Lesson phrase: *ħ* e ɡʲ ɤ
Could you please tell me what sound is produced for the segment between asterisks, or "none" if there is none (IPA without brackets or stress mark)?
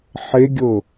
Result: ħ